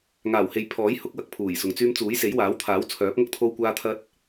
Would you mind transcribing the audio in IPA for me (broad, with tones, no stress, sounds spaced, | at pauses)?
ŋ aː˨˩ w h e˨ j pʰ ɔː˨˥ j h ʊ˨˥ k̚ w ɐ˨ k̚ pʰ uː˨˩ j s ʊ˨ ŋ t͡s yː˥ m t͡s uː˨˥ j s e˨˥ j w aː˨˥ w t̪ʰ aː˨˥ w t͡sʰ œː˨˥ p̚ ŋ ɐ˥ k̚ t̪ʰ o˥ w kʷ aː˥ t̪ʰ ɐ˥ t̚